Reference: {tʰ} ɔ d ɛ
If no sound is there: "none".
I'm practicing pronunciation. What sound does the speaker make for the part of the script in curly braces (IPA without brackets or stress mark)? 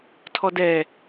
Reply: tʰ